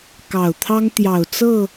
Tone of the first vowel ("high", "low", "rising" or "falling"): low